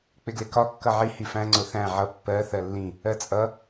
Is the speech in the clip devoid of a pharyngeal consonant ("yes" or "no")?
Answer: no